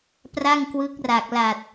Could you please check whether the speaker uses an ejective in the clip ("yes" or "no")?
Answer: no